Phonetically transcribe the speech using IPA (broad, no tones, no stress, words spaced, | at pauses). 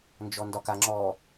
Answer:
nd͡ʒɔndɒkaŋ͡ǁɔ